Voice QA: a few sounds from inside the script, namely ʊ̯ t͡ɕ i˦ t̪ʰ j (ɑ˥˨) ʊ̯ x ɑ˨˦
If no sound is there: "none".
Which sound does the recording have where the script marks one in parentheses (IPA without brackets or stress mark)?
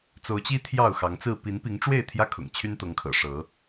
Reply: ɑ˥˨